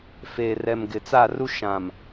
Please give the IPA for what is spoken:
feː˨rɛ˨m ɡɪ˨ t͡sa˦˨ru˦ ʃã˨m

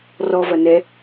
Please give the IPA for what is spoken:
rɔvɐ nɛ

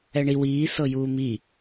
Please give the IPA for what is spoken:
ɛɳiw iː sɤjuːmi

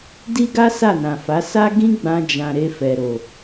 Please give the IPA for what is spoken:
di˦ɡa˦ sa˦˨nã˨fa˨˦ sa˦ ɡĩ˦ɡ͡bã˧ d͡ʒã˨ ɾe˧fɛ˨ɾo˨

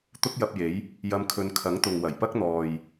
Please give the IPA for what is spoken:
t̪ʊ˥k̚jɐ˧p̚je˨˥j | jɐ˧m kʰɵ˧n kʰɐ˨˥ŋt̪ʊ˨ŋ wɐ˨˩jpɐ˥k̚n̪ɔː˨j

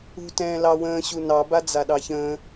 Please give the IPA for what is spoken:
ṳ tɛ̃ːlɑwə̃ː ɕunɑ bad͡zaɗɑçə̃ː

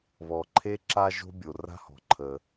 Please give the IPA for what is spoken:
βɔ˩ǃʰe˥ ǁa˥ʒo̤˥ bʲo˩ra̤˥hɔ̤˩ǃʰə˩

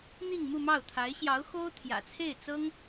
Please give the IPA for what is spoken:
n̪i˥˧ŋmu˥˧mɑ˥˩ʊ̯ t̪ʰa˧˥ɪ̯ɕjɑ˧˥ʊ̯ xo˥ʊ̯ t̪ʰjä̰˨˩t͡sʰe˥˩ɪ̯ t͡sɤ˥ŋ

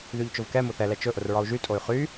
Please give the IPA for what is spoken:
ðyʎt͡ʃʊvkɛ mʊθɛlɛ t͡ʃɵʔʊr ɹɒu̯ʒytʼoy̯ χy

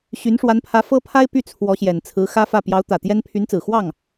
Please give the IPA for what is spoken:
ɕy˧˥nʂwa˧˥npʰä˧˥ fɤ˥pʰa˥ɪ̯ py˥˩t͡sʰwɔ˧˥ɕjɛ˨˩n t͡sʰɹ̩˧˥ xä˥fä˥˩ pjɑ˧˥ʊ̯t̪ä˨˩t̪jɛ˥n pʰy˧˥nt͡sɹ̩˨˩ xwɑ˥˩ŋ

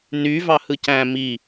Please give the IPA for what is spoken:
ny vɑhɯcæ̃ mi

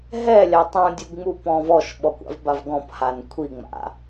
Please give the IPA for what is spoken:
ɦɛlʲa tˤũdʲuɡŋ͡mupɔ̃ːv ɔʃɓɔkʷa̰vbav ɡɔ̃phan kʷʰiŋ͡ma̰

